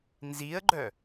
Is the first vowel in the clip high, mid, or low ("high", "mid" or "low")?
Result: high